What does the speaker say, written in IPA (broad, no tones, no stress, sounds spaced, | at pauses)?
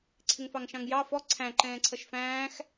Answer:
ǀʰ ɪ ŋ f ɑ ŋ ʃ ɑ̃ ŋ j ɑ f ɔ ǀʰ æ̃ ǃ ɛ̃ː ǀʰ ʌ ʃ f æ̃ː x